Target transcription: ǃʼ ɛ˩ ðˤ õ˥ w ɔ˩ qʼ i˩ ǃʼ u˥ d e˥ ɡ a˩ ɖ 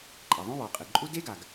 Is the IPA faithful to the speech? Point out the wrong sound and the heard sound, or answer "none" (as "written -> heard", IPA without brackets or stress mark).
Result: ɖ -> ɡ